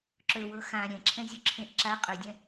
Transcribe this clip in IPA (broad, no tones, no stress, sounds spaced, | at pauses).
ǁ ɵ w ɤ x ã ɾʲ ɛ̃ ǁʰ ɛ̃ zʲ ɵ ǁʰ ẽ ʔ ǁ a qʼ ɵ dʲ ɛ̃